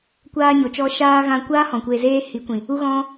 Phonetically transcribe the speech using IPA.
kʷ aː˧ ɲ o˨ t͡ʃ ɔ˧ ʃ aː˧ ɣ ã˧ kʷ aː˦ h ɔ̃˨ kʷ eː˧ z eː˦ h i˨˦ kʷ ĩ˨ | u˦ ɣ ɔ̃˦

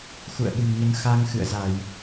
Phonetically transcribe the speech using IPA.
x ṵ˧˨ ə̯ ɓ ɨ̤˨˩ n ɲ ə˨˦ n x a˧ ŋ x ɨ̰˧˨ ə̯ z a˧˩˨ j

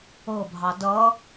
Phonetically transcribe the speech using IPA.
ɤ bʱ ɑ d ʌ

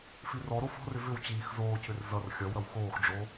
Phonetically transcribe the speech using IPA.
f i r ɔ ɾ o f ɔ̤ r ʏ v ʏ w t͡ɕ iː x z oː cʰ ʏ r z ʌ r xʲ ʌ w ɾ ʌ w x oː x ɖ͡ʐ o

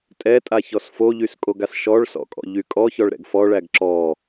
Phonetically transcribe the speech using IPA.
tʼ ɛ tʼ a ç ɔ s f o ʎ y s kʼ o ɡ a s ʃ ɔ ɭ s ɔ̰ kʼ ɔ̰ ʎ y kʼ ɔ ç ɔ ɭ ɾ ɛ̰ ɡ f ɔ ɭ æ ɡ ǁ ɔ

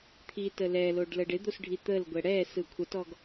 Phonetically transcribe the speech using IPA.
t̪ʰ i t ə l ɛ l o ɖ l ə ɖ ɪ d̪ o s ɖʱ i t̪ ə l ɡʷ ɛ ɽ ɛ s ɯ kʷʰ ə t ɔ ɡ

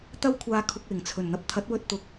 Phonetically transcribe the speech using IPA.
t̪ ɐ˥ w kʷʰ aː˧ kʰ ʊ˧ k̚ w ɪ˨˩ ŋ t͡sʰ ɵ˨˩ n n̪ ɐ˨ p̚ t̪ʰ ɐ˨˥ t̚ w ɵ˧ t̚ t̪ ʊ˨ k̚

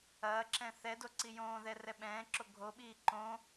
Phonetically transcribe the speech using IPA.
ɐː ǁ ɛ̃ θ ɛ d o ǀ i j õː ð ɛ r ɛ ɓ ɛ̃ː ǁ o ɡʱ o ɓ iː ǃ õ

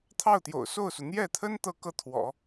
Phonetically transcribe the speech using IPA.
t̪ʰ ɑ˥˩ ʊ̯ t̪ j o̰˨˩ ʊ̯ s o˥˩ ʊ̯ s u˩ n̪ j ɛ˥˩ t̪ʰ ə˥ n t̪ ɤ˥ k ɤ˥ t̪ʰ w ɔ̰˨˩˦

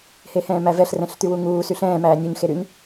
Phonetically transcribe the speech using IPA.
h e h ɛ̃ː m æ v ɛ ɬ r ɛ̃ ɬ t̪ y w u ŋ uː s y ɬ ɛ̃ː m æː nʲ u ɲ x e ɾ y ɲ

